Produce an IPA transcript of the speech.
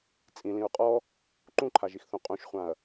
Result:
t͡sʼ ĩ l ĩ ɹ qʼ ɔ | ǃ ũ ǃʰ a ʒ i x θ ũ qʼ ũ ʃ χʷ ã ɐ̯

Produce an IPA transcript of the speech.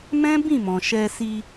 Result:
m ɛ̃˦ b ĩ˦˨ m ɔ̃˨ ʃ ɛ˧ s i˧

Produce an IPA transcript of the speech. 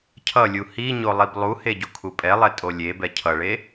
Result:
cʰ ʌ lʲ u h i ɲ o lˠ i b lˠ u h e ɟ o kʰ u pʼ ɛ lˠ ɛ tʼ o lʲ e b ɛ cʰ ʌ ɭ e

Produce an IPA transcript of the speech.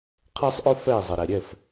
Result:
qʰ ɛ˦ sˤ ʔ ɵ˦ f ɛ˦˨ i̯ zˤ ə˨ ɾ ɛ˨ ɾʲ ɛ˦˨ f

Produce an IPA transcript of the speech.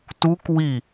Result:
t u k w i

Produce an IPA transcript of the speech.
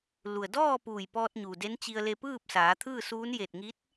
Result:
l u˩ ə̯ d ɔː˥˨ p uː˧˩ j p ɔː˧ t̚ ɲ u˩ d e˧˥ n t͡ɕ i˧ ə̯ l e˧ p ɯː˥˨ p̚ s aː˩˧ t̪ʰ ɯː˥˨ s uː˧˥ n j e˧˩ t̚ ŋ i˧˥ t̚

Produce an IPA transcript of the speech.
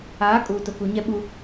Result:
aː˨˦ kʼ uː˨ t ʊ˨ k u˨ ɲ ɛ˦ ɓ u˦

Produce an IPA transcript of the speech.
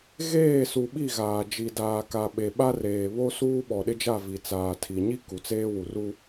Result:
ɣ eː˦˨ s u˨ ɓ i˦˨ ɣ aː˨ d͡ʒ i˨ d aː˨ k a˨ ɓ e˨ ɓ a˦ r eː˨ β o˦ s uː˦ ɓ ɔ˨ ɗ ɪ˦ d͡ʒ a˦˨ v i˨ t͡s aː˨ tʰ i˨ ɲ i˦ k u˨ t͡s eː˦ w u˨ r u˦

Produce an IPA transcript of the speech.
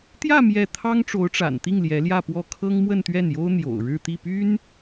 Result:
t̪ j ä˥˧ m j ɛ˥˩ t̪ʰ ɑ˥ ŋ ʈ͡ʂ o˧˥ ʊ̯ ʈ͡ʂ a̰˨˩ n t̪ i˥˩ ŋ l j ɛ˧˥ l j ä˥˧ p w ɔ˥˩ kʰ ɤ˥ ŋ m w ə˥˧ n t̪ ɥ ɛ˥˩ n j o˥ ʊ̯ n̪ j o̰˨˩ ʊ̯ ɻ ɻ̩˥˧ t̪ i˥˩ p y˥ n

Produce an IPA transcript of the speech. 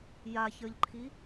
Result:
j a ç ə˞ ʎ ǃʰ i

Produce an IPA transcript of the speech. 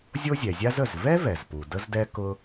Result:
zʲ o˥ zʲ ɛ˩ zʲ a˥ z ə˩ z v ɛ˥ v ɛ˩ z p u˩ d ə˥ z d ɛ˥ k ʊ˥

